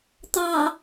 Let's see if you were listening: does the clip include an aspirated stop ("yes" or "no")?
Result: no